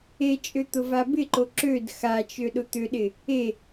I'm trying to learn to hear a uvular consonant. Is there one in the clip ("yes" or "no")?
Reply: no